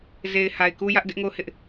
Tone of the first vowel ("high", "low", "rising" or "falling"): low